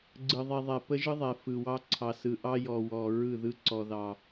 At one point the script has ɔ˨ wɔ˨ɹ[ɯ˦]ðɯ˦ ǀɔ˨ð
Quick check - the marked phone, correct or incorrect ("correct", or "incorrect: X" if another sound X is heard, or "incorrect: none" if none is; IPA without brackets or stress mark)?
incorrect: ɯ˦˨